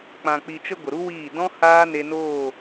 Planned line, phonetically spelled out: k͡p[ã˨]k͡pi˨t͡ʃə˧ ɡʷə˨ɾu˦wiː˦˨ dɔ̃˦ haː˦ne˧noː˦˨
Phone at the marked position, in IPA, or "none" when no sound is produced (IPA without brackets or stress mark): ã˨